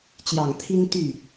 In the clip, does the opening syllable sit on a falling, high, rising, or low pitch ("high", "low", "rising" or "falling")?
low